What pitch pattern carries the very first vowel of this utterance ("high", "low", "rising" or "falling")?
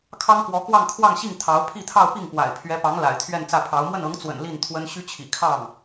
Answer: high